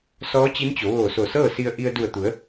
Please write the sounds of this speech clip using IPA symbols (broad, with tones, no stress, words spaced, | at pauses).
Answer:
sɔː˧˥t͡ɕi˧˥nt͡ɕo˩˧ ʋoː˧˩so˧˩sɤː˥˨si˧ə̯ ʔi˧ə̯ du˧˩ə̯t̪u˩˧ə̯